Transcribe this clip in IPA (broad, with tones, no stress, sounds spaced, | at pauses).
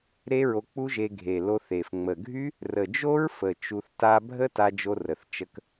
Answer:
ɾ e˦˥ ɹ o˧ k͡p u˦˥ ʒ e˧ ɡʱ e˨˩ l o˧ θ e˨˩ f ŋ͡m ə˨˩ ɡʱ y˦˥ | r ə˨˩ d͡ʒ o˦˥ ɹ f ə˨˩ t͡ʃ u˧ θ t a˦˥ bʱ ə˦˥ t a˧ d͡ʒ o˧ r ə˨˩ θ t͡ʃ ə˧ k